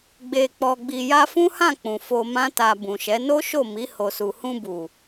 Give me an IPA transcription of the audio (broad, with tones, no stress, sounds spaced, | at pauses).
ɡ͡b e˨ k͡p ɔ˨ ɡ͡b i˨ j a˧ f ũ˦ h ã˦˨ k͡p ũ˨ f o˧ m ã˦ t a˧ b ũ˨ ʃ ɛ˨˦ n o˦ ʃ o˦˨ m i˨˦ h o˧ s u˧ h ũ˧ b u˨